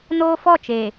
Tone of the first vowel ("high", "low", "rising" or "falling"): high